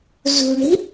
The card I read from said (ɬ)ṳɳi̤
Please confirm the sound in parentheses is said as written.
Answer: no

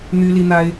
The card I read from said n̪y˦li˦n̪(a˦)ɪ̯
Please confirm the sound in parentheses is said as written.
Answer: yes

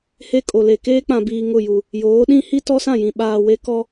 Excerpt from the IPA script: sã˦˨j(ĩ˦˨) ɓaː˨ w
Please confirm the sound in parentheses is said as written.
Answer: no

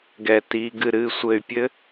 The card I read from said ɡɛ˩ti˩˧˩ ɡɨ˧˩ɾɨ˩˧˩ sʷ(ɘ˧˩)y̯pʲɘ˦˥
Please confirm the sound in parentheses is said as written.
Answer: yes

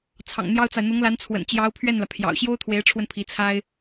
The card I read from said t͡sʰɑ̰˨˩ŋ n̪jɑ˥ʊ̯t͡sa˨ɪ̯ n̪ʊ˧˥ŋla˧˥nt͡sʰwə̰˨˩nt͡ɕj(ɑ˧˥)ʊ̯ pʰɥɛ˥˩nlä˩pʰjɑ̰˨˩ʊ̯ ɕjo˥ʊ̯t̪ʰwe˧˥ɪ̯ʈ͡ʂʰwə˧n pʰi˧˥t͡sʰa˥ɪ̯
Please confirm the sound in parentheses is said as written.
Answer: yes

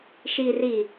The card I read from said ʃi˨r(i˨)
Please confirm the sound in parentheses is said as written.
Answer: yes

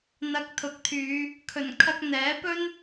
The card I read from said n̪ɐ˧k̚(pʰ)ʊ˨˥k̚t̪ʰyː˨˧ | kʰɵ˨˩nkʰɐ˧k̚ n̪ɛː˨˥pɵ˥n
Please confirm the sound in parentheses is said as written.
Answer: no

